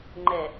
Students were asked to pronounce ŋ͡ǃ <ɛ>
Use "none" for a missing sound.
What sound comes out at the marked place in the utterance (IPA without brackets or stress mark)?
ɛ